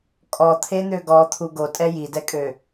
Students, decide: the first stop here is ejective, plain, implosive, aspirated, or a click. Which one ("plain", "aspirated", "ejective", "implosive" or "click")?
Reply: ejective